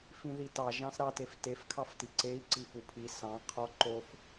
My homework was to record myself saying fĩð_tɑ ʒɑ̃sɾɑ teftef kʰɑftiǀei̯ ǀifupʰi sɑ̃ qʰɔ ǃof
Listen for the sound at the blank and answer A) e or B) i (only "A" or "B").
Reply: B